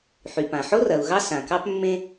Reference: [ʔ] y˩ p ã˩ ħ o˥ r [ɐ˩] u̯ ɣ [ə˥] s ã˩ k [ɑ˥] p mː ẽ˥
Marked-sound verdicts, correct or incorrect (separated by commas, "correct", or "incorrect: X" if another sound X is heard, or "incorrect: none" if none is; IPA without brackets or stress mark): incorrect: ħ, correct, incorrect: ɑ˥, correct